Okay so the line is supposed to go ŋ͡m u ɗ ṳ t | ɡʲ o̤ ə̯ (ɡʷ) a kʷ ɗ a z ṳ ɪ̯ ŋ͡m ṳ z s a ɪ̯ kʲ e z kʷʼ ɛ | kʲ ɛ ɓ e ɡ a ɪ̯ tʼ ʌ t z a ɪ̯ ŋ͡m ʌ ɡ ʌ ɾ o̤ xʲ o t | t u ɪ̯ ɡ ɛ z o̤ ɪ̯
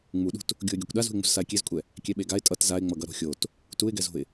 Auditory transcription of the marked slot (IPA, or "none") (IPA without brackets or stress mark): ɡʲ